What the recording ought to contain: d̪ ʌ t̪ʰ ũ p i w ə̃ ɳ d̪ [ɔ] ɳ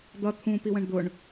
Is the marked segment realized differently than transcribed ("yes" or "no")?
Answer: yes